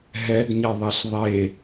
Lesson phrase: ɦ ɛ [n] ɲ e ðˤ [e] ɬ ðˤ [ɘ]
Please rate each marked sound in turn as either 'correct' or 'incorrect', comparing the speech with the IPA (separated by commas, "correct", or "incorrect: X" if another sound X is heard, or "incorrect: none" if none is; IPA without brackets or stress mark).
incorrect: d, correct, incorrect: e